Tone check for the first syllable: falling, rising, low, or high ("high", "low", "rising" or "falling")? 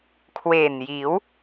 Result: low